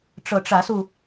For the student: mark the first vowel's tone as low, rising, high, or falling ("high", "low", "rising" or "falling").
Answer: rising